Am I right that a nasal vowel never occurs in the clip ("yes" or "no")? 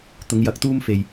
yes